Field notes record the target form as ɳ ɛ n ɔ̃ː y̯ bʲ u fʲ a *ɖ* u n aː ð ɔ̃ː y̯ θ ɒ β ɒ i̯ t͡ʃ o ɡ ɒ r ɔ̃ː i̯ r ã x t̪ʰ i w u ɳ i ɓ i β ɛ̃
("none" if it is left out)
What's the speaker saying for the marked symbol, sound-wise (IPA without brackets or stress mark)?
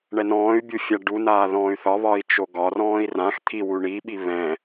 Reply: ɖ